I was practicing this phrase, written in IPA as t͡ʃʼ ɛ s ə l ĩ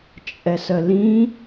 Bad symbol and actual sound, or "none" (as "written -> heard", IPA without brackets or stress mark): none